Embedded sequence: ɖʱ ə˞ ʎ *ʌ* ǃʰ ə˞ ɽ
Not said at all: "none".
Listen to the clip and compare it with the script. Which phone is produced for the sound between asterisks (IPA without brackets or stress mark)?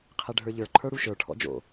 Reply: ə˞